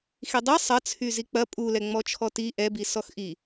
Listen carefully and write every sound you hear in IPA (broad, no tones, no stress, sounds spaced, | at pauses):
x i dˤ i sˤ ɐ t͡sʰ y z i k͡p ɐ pʼ u l ɛ ŋ͡m ɔ t͡ʃʰ ɔ t i ʔ ɛ b i s ɔ x ʔ i